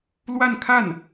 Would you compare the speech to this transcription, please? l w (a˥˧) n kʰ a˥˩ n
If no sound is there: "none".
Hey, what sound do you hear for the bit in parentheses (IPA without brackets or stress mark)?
a˥˧